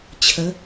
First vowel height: mid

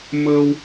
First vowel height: mid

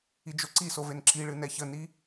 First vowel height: high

